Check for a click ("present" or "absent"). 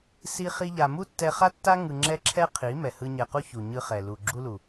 present